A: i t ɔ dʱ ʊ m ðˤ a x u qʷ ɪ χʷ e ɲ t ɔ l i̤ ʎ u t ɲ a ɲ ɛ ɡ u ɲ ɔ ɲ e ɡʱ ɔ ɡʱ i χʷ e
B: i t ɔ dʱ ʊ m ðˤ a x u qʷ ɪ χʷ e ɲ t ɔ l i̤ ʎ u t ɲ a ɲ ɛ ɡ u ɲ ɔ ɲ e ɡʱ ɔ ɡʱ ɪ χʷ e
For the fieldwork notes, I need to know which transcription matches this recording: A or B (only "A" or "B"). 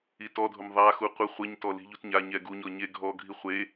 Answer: A